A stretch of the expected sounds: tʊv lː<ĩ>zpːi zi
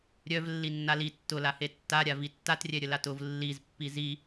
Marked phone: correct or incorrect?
incorrect